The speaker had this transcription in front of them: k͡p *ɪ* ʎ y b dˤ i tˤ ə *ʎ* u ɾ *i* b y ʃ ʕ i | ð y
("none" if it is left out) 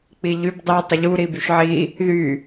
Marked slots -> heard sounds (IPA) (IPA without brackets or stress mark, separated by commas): i, ʎ, i